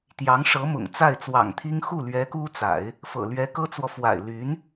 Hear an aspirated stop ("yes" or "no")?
yes